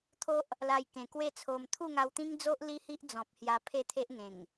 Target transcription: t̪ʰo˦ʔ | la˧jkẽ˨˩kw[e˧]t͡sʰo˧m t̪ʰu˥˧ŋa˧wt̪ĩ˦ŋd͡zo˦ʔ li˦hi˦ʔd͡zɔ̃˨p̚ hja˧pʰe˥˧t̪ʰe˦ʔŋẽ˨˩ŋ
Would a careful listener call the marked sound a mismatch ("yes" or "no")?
yes